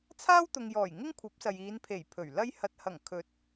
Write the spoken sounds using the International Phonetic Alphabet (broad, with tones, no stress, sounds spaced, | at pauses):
t͡sʰ aː˥ w t̪ ʊ˨ ŋ j ɔː˨˩ j ŋ ɪ˥ ŋ kʷʰ ɐ˨˥ p̚ s ɐ˨ j iː˨˧ n pʰ e˨˩ j pʰ ɵ˨˩ ɥ l ɐ˥ j h ɐ˧ t̚ h ɐ˨˩ ŋ kʰ ɵ˨˥ t̚